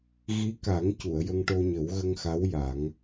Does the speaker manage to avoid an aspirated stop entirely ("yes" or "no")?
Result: yes